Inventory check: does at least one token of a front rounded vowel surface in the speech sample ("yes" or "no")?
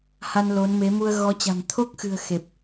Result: no